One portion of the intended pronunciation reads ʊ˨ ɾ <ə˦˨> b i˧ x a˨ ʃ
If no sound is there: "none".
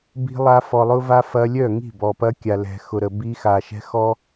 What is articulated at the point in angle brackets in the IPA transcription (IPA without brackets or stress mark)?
ə˨